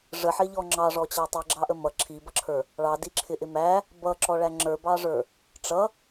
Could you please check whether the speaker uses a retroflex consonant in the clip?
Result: yes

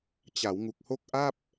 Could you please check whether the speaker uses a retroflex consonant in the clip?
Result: no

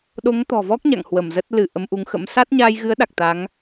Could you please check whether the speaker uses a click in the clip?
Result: no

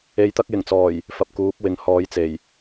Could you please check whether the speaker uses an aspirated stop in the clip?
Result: no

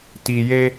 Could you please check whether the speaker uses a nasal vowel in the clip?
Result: no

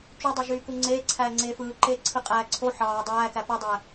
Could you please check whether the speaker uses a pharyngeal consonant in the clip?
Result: yes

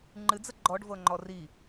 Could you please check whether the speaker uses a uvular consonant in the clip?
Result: no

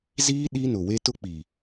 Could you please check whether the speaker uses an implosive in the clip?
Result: yes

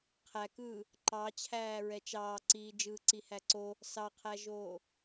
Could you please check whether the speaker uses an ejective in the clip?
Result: no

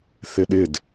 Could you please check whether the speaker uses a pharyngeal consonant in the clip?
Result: no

